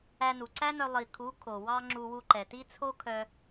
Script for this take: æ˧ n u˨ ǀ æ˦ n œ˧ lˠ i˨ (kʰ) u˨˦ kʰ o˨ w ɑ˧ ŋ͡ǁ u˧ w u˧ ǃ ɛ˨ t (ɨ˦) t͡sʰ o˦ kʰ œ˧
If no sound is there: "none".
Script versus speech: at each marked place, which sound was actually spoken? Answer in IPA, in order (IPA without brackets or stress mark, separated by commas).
kʰ, i˦